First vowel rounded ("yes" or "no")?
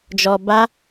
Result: yes